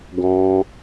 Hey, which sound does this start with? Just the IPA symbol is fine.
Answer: ɡ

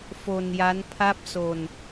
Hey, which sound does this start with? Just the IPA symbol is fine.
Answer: f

